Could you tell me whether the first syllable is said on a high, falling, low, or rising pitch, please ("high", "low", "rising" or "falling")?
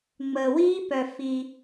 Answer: low